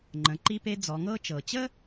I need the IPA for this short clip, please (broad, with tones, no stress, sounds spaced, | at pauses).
ŋ͡ǃ ə̃˩˧ ǃ i˧ p e˧ d͡z ɔ˩˧ ŋ ɤ˥ t͡ʃ ɤ˩ t͡ɕ ə˥